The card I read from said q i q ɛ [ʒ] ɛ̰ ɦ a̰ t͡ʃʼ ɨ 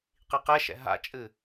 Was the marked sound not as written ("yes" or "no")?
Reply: yes